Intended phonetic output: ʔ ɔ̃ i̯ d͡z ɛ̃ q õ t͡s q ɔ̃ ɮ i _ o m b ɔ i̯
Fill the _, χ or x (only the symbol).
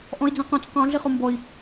χ